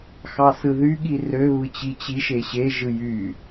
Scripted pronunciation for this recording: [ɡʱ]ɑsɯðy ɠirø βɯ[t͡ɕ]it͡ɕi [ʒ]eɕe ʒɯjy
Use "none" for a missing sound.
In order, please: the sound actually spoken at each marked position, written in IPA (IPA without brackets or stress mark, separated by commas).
x, t͡ɕ, ʃ